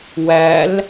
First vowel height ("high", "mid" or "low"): low